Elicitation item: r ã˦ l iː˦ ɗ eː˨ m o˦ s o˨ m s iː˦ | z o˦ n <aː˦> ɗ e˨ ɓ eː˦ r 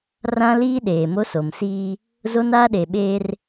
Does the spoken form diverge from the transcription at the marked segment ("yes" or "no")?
no